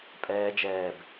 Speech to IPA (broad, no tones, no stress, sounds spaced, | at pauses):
pʼ ɛː d͡ʒ ɛː b